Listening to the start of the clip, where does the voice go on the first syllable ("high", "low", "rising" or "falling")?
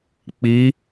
rising